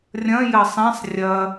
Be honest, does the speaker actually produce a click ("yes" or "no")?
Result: no